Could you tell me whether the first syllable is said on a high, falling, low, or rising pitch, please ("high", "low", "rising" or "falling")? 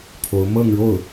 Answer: rising